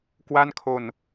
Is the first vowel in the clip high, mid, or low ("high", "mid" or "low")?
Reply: low